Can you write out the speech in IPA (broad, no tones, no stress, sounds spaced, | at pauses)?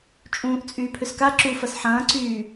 t͡ʃʼ ũː ʔ t͡sʼ yː pʰ ʏ s k a ǁ u f ɐ s ħ ɐ̃ː ǀ yː